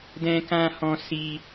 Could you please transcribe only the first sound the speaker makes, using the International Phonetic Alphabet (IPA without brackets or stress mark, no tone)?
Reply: d